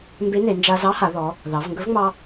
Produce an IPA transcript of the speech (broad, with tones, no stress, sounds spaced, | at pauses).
m b e˧˥ n e˩˧ n d͡ʒ a˧ z ɑ˧˥ h a˩˧ ð ɔ˩˧ | ð ɑ˩˧ v ŋ ɡ ɵ˧˥ v ŋ͡m ɑ˧